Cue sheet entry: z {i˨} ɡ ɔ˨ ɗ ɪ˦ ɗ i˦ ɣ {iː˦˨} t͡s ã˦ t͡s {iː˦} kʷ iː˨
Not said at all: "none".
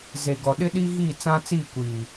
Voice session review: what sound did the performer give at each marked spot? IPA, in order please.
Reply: e˨, iː˦˨, iː˦˨

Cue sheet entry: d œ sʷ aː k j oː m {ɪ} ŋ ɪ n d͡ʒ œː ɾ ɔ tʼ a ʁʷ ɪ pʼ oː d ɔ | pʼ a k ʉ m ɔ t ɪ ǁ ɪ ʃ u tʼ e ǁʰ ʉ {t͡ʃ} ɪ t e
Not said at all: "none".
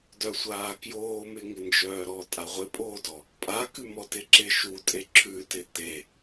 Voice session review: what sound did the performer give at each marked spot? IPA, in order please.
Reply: ɪ, t

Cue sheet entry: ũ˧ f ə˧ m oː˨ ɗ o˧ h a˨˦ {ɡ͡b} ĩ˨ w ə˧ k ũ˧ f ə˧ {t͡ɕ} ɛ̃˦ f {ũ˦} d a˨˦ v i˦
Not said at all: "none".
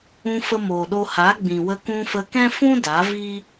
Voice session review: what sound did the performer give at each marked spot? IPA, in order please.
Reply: ɡ͡b, k, ũ˦

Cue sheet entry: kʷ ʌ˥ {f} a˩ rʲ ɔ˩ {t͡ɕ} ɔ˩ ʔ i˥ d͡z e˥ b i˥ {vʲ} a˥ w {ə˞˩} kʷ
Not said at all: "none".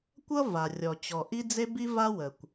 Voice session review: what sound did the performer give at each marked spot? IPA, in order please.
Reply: v, t͡ɕ, v, ə˩

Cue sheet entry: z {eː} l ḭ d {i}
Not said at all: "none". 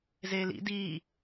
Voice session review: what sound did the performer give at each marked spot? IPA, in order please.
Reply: eː, iː

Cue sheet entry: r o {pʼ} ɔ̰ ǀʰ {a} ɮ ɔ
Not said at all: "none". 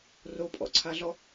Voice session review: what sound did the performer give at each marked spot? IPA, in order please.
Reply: pʼ, a

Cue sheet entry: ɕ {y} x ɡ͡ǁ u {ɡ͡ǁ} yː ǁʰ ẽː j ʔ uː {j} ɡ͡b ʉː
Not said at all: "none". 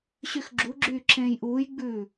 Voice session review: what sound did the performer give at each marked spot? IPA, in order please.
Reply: y, ɡ͡ǁ, j

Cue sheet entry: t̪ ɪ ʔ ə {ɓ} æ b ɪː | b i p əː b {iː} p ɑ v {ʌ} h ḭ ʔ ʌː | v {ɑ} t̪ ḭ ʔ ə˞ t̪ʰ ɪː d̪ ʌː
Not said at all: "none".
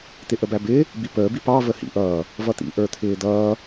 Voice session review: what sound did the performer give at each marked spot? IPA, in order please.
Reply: b, i, ə, ʌ

